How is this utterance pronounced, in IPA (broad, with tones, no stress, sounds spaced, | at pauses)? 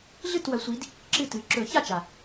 ɮ ɨ˥˨ t w ɐ˨˦ sʷ i˨˦ d | ǁ ɨ˥˨ t ɨ˨˦ ǁ ɵ˨˩˦ ç a˥˨ t͡ʃ a˩